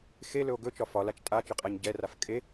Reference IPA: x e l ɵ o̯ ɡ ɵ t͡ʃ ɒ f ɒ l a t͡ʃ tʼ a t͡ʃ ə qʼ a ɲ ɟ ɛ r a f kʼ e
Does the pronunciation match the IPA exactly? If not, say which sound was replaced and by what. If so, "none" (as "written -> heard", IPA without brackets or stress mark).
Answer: none